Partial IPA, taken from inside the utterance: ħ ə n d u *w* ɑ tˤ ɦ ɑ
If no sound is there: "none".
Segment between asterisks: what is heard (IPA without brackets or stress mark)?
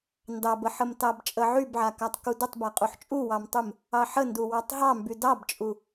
w